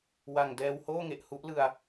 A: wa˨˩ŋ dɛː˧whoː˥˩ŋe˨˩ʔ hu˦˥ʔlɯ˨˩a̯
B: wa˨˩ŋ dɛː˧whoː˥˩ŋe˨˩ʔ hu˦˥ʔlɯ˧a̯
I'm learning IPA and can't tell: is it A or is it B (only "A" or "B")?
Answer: B